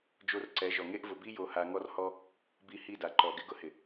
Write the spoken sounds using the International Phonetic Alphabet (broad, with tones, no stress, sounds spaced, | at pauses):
d͡ʒ o˧ r ǀ ɛ˨˦ ʒ ɔ˨ ŋ e˦ ʔ v ʊ˨ b i˦ j o˧ h a˧ ŋ ɔ˦ r h ɔ˦ | b i˧ h i˦˨ d a˨ ǃ ɔ˨ ɡ ɪ˧ ɡ ʊ˧ h ɪ˨